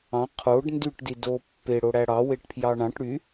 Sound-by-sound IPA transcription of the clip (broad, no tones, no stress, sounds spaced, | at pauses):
ɑ̃ qʰ o ɖ n d y ʈ d i d o pː e ɽ o ɽ æ ɽ ɑ w e ʈ pʰ j ɑ ɳ ɑ̃ ʈ ɽ y